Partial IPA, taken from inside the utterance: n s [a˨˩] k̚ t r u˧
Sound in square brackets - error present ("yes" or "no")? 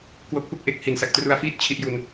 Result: no